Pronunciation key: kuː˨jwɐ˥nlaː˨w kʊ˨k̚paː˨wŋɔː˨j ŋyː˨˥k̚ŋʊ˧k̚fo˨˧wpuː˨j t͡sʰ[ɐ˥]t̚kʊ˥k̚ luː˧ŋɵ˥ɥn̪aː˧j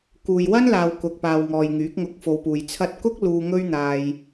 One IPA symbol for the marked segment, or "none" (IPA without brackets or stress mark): ɐ˧